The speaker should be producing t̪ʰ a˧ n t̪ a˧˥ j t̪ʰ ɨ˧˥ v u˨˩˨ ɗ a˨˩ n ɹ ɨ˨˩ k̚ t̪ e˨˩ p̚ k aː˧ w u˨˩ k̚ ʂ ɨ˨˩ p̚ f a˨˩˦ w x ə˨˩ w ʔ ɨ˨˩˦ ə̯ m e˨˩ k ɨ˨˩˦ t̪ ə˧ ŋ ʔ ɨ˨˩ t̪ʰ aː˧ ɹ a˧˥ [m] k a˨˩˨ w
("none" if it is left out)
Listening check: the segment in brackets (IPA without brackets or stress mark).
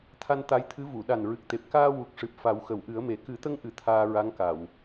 ŋ